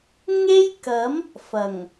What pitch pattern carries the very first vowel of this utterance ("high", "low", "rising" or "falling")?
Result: high